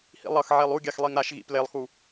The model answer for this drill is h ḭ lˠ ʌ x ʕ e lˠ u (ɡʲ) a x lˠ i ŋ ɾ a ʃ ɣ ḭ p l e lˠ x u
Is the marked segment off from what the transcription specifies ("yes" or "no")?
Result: no